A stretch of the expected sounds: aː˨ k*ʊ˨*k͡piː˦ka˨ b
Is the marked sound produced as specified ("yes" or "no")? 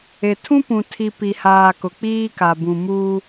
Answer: yes